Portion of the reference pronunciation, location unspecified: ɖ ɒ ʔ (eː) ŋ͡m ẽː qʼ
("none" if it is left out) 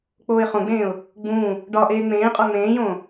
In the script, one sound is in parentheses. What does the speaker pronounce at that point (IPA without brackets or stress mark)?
eː